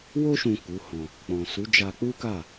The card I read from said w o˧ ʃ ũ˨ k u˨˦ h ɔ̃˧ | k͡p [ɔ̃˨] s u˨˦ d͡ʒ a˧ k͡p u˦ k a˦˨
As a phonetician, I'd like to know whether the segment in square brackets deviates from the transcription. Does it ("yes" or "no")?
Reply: no